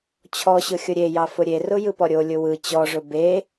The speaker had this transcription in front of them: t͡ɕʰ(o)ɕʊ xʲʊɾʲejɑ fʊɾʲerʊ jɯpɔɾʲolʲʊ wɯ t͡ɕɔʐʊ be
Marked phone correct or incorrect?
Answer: incorrect: ɔ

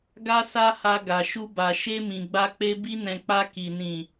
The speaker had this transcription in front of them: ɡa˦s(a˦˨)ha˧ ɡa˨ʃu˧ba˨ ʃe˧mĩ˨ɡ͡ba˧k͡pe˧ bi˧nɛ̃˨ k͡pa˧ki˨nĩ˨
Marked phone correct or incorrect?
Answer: incorrect: a˦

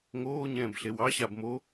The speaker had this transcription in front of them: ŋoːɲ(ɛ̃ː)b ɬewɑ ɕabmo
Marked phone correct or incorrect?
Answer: correct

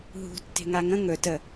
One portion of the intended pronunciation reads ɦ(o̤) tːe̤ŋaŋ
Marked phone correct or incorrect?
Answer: incorrect: ṳ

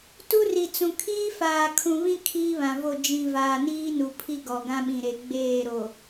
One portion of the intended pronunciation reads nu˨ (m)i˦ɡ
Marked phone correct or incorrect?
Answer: incorrect: pʰ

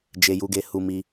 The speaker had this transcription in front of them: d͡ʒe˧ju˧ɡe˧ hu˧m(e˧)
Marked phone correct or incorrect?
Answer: incorrect: i˧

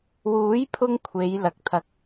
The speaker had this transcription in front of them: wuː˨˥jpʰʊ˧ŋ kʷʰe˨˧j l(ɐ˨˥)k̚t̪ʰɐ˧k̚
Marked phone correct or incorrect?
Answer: correct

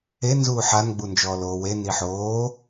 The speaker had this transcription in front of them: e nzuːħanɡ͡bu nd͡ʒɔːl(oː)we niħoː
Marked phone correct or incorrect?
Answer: correct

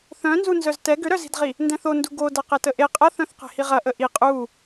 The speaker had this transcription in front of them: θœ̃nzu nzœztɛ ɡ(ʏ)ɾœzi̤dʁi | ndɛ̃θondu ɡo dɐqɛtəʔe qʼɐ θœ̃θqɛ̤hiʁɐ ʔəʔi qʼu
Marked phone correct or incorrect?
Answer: correct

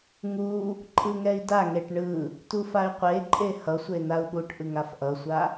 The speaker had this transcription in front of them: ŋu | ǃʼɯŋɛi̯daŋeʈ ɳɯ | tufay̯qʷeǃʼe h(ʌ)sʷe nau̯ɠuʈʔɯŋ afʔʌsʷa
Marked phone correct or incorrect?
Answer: correct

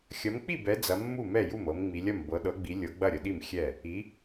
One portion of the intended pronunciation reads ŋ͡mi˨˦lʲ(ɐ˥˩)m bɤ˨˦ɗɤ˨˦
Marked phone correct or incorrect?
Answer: correct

